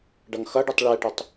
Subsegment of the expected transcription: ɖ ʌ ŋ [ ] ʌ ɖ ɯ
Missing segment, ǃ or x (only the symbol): x